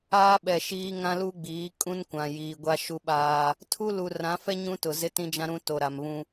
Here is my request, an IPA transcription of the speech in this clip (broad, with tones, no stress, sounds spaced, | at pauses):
aː˦ ɓ ɛ˨ ʃ iː˦ ŋ ã˦ l u˦ ɡ͡b iː˨˦ kʼ ũ˦ n kʷ ã˨ j iː˨ ɡʷ a˦ ʃ u˦ ɓ aː˦ | tʰ u˦ l u˨ r ã˨˦ f ɛ˦ ɲ ũ˦ t ʊ˨ z ɪ˦ t ĩ˦ d͡ʒ ã˦ ɾ ũ˦ t o˨ ɾ a˨ m β ũ˦